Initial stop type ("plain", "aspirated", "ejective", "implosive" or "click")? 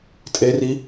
ejective